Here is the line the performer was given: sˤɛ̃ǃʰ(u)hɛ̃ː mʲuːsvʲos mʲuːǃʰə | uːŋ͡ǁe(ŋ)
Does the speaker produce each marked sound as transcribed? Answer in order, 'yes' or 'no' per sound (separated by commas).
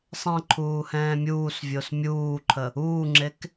no, no